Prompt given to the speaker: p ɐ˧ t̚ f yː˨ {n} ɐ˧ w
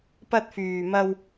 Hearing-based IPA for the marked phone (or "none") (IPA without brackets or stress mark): m